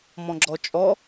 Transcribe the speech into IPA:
m ɔ̃ ɡ͡ǁ ɔ t͡ʃʼ ɔ

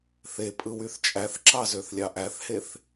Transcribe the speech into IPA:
θ e pʼ ɯ w y θ t͡ʃʼ æ θ ǁ ɑ z ø θ lʲ ɑ ʔ æ θ h e θ

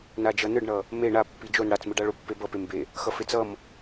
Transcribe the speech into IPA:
n a d͡ʒ ʌ n ɯ ɖ ɳ ʌ | m e ɳ a pː i d͡ʒ o n ɽ a t͡s m ɯ ɖ a ɭ o pː e b ʌ p e m b e | x ʌ f e t͡s ʌ m

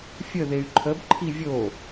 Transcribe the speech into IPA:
fʲ ə ð e y̯ ǃʰ ə b ǃʰ i vʲ o

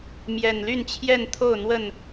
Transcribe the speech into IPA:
m j ɛ˨˩ n l y˥˨ n t͡ɕʰ j ɛ˥˨ n t̪ʰ o˥˨ ʊ̯ n̪ w ə˥˨ n

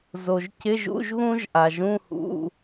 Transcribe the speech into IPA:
z o˩ ʒ c ɪ˧˥˧ ʒ ṵ˧˥˧ ʒ ɣ ũ˥ ʒ ʔ a˩ ʒ ũ˧˥˧ h ṵ˧˥˧

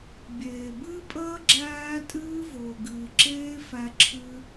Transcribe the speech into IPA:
bʲ eː˨ b ɨː˦ pʼ əː˦ ɡ͡ǁ æː˦ tʼ ɨː˦ v ʊː˨ ɡ ɨː˨ ǁ eː˦ f æ˧ ǁʰ ɨ˧

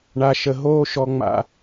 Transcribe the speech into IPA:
ɳ a˨ ʃ ə˨ ɦ oː˦ ʃ ɔ˦ ŋ͡m a̰˦

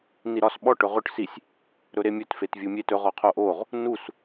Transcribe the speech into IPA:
n i ɾ ɒ s ɓ ɔ ʈ ɵ ʁ ɵ ʈ s i sʲ | ɾ ɵ ɾ e mʲ ɵ t f e t vʲ u mʲ e t ɵ ʁ ɔ qʰ o ʔ o ʁ | n u s

